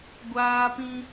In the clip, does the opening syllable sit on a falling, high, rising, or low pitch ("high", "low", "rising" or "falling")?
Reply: high